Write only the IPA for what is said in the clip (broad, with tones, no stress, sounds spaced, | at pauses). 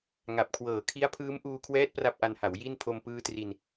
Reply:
ŋ a˨˩ p̚ kʰ w ɤː˨˩ kʰ i˦˥ a̯ pʰ ɯː˦˥ m ʔ uː˧ kʰ w ɛː˦˥ t̚ p r a˥˩ p̚ ʔ a˧ n h a˩˦ w j i˥˩ n pʰ o˧ m p ɯː˦˥ t r i˧ n